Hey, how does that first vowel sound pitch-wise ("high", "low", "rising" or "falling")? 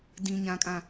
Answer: low